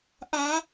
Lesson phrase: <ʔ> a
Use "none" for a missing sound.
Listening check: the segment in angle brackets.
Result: ʔ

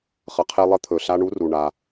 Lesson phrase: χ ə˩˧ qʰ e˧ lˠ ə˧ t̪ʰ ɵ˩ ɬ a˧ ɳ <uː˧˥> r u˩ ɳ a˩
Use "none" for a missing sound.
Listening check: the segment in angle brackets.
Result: u˧˥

